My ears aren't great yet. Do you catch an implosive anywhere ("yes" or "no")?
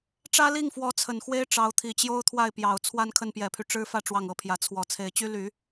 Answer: no